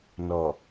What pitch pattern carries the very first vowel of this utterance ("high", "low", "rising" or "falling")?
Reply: low